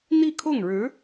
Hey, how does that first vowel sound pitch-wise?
falling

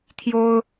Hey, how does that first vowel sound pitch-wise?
high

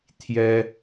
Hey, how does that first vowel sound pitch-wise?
high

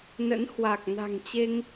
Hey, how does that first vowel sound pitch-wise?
rising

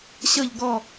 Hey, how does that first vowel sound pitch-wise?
falling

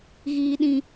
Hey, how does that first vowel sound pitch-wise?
low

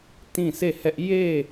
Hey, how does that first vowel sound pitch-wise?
falling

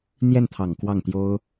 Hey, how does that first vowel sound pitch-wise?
falling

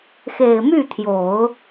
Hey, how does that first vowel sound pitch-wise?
low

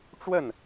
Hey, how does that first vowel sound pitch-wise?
falling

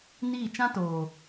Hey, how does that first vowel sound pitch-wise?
falling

